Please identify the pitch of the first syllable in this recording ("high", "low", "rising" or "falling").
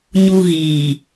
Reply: low